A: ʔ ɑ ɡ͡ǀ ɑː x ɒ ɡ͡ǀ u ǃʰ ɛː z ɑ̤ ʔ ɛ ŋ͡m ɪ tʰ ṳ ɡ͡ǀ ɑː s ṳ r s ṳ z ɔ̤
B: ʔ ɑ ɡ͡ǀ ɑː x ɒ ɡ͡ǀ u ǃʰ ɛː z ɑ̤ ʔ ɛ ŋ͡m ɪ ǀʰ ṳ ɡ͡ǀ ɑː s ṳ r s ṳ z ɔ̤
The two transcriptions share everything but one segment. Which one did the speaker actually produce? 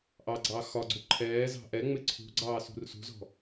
B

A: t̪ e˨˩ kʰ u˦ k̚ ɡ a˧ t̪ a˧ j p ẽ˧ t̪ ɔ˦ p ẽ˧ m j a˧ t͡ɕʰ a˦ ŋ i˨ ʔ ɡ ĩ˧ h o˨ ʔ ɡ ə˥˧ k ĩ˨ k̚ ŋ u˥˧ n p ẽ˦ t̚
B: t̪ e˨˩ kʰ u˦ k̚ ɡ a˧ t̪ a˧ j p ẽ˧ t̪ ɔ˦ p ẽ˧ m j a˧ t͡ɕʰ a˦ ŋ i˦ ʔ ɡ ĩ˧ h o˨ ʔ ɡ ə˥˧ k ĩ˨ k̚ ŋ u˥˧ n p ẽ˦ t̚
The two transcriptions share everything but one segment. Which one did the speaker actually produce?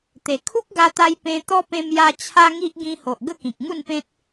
B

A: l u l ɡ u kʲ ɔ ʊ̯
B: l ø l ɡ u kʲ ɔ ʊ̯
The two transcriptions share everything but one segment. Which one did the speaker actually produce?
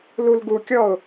A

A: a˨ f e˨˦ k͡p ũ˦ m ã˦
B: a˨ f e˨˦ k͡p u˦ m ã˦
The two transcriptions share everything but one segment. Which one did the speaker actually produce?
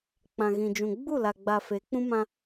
A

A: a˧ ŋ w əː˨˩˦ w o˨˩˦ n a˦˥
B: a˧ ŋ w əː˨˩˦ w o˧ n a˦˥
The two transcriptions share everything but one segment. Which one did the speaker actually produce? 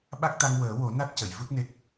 A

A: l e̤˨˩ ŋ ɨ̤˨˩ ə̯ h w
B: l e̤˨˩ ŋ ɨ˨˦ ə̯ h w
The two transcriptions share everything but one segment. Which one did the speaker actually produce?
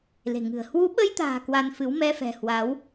A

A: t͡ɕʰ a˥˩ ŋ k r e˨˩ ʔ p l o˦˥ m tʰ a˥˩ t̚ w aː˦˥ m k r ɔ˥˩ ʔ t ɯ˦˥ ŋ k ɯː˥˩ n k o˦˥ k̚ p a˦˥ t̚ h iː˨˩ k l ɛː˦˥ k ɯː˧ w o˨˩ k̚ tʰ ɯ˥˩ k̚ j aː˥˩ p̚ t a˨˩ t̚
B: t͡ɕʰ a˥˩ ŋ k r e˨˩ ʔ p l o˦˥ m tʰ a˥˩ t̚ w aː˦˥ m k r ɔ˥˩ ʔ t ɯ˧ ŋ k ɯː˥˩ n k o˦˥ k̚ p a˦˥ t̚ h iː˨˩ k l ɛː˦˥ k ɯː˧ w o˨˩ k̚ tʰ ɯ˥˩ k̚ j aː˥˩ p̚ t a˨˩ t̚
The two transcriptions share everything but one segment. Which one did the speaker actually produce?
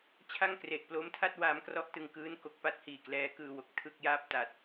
B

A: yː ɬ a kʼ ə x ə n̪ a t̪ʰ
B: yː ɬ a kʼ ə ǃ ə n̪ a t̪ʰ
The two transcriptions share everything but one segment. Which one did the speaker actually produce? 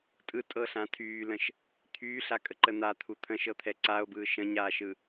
B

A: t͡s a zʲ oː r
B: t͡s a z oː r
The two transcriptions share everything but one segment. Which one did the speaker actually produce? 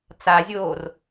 A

